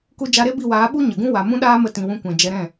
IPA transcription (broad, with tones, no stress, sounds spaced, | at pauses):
k u˧ d͡ʒ a˧ ɾ e˦ b i˦˨ w aː˨˦ ɓ u˦ ɲ ə˨ ɡ ũ˦ w a˨ m ũ˦ ɗ aː˦ m ə˧ t ĩ˨ w ũ˧ kʷ ɛ̃˨ d͡ʒ ɛ˧ ɾ ɛ̃˦˨